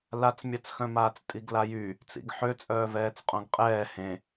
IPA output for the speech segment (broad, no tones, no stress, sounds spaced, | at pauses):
l a t͡s mʲ a t͡s x œ̃ m aː t͡s tʼ i ɡ l a j y | t͡s ḭ ɡ ħ ø t͡sʼ œː v ɛː t͡s qʼ õ ɡ qʼ ɛː h ẽ